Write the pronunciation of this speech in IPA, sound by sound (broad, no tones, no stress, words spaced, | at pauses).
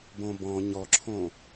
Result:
bõbɔ̃ ɲɔǁʰõ